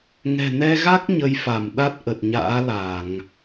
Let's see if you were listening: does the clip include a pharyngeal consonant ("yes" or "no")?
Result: no